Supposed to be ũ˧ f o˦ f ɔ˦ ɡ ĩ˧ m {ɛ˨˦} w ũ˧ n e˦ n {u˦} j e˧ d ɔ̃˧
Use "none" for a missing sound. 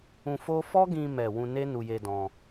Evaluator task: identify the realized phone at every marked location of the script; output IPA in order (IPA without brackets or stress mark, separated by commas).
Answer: ɛ˨, u˧